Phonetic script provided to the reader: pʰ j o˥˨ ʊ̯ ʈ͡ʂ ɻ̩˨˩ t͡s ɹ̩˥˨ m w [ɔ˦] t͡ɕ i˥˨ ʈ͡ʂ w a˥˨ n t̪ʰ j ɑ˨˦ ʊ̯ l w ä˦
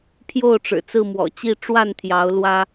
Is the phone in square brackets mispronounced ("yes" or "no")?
yes